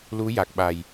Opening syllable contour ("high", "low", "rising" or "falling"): rising